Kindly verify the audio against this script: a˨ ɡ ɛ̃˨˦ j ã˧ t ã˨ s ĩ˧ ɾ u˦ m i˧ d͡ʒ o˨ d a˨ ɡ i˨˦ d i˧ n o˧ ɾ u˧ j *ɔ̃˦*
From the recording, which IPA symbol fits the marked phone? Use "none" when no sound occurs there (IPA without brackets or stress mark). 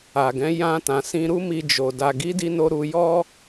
ɔ˦